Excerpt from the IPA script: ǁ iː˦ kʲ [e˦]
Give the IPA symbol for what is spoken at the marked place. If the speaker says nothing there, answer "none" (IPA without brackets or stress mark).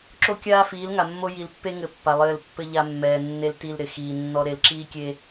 e˦